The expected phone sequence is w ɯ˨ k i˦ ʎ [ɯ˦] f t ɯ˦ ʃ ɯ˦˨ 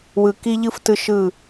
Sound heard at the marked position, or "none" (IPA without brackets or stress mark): ɯ˦